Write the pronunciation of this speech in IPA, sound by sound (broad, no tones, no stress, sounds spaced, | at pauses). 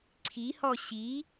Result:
ǀʰ i h ɔ ɕ i